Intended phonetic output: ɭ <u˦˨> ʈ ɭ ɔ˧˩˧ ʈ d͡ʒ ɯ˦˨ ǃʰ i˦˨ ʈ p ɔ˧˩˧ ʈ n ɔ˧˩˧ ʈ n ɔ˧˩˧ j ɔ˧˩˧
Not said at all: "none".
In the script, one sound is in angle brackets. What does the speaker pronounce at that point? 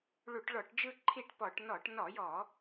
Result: u˧˩˧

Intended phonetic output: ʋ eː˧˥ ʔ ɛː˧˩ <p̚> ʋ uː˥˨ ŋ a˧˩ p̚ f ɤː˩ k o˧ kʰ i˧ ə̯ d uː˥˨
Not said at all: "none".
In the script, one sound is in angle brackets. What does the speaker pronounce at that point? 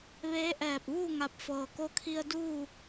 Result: p̚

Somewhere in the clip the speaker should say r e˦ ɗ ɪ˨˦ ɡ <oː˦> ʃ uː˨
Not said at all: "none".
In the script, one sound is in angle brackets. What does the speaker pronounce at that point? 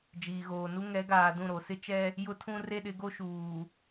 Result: o˦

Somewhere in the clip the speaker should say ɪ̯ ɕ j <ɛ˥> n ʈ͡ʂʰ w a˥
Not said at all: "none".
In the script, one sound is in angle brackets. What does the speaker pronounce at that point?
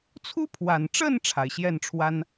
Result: ɛ˥˩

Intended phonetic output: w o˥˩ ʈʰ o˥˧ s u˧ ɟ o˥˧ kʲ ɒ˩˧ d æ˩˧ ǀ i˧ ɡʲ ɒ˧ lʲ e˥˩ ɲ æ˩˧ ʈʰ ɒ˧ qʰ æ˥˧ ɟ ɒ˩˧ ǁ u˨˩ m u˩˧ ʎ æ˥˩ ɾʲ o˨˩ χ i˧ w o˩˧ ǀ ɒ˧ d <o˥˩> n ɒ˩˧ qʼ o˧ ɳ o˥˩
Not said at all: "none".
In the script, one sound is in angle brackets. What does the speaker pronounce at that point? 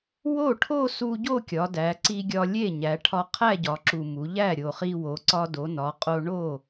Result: o˩˧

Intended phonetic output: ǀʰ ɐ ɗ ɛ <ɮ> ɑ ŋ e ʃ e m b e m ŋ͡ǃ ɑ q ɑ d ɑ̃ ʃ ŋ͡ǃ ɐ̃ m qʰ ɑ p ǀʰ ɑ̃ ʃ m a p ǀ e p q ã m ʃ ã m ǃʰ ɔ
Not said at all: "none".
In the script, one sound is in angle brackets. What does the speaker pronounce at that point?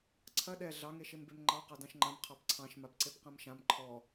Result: ɮ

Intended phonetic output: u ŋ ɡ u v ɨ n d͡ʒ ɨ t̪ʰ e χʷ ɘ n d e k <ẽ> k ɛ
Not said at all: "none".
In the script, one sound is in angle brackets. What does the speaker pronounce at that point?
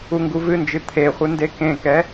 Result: ẽ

